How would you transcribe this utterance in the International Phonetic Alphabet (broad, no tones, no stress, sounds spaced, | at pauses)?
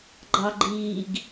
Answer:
ɡ͡ǃ ɑ ɡ͡ǃ iː ɡ